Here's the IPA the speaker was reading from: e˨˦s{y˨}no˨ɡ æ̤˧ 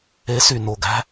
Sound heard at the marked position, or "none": y˨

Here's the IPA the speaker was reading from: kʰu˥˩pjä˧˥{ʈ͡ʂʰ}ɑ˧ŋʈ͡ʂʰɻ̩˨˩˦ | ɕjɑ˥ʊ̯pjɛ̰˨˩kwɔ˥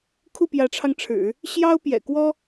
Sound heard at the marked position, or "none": ʈ͡ʂʰ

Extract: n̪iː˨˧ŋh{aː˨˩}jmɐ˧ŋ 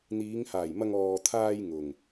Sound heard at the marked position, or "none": aː˨˩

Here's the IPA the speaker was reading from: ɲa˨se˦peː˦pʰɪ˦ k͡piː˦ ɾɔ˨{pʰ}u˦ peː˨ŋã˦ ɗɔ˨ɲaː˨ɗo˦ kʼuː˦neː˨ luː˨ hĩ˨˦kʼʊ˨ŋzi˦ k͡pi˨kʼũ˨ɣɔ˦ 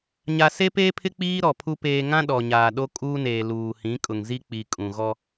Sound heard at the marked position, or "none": pʰ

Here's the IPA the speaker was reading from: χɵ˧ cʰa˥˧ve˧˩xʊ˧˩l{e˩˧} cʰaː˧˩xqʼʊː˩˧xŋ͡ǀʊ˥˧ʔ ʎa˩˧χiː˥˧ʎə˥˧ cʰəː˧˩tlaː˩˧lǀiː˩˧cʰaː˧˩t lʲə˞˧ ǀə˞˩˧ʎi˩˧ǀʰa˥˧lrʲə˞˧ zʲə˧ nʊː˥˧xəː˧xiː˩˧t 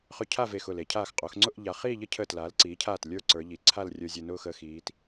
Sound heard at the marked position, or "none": e˩˧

